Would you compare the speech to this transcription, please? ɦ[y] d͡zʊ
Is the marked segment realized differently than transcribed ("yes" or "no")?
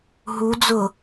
yes